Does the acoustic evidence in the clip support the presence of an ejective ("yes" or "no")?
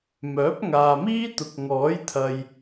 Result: no